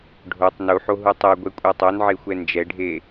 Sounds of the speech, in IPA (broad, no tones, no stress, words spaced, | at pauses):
ɖʱotˤ nuħoɦu tˤeɡʷɛkʷʼɛ tˤonʕexʷɛ nd͡ʒɛɖʱe